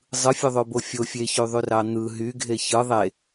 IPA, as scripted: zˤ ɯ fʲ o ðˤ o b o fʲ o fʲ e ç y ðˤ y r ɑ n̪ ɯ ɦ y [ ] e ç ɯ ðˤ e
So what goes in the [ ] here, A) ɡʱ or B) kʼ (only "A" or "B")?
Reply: A